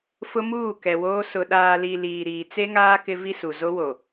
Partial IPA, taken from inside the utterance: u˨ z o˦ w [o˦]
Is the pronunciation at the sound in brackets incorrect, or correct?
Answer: incorrect